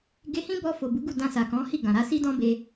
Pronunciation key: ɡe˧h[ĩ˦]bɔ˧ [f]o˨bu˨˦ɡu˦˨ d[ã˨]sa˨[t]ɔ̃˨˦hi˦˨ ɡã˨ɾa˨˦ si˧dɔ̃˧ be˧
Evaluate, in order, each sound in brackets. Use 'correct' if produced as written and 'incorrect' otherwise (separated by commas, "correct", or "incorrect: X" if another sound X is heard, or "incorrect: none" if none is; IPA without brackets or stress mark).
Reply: correct, correct, incorrect: ã˧, incorrect: k